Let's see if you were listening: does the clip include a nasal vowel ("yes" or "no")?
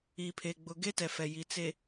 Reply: no